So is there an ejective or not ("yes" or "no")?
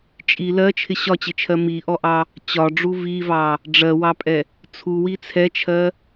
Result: yes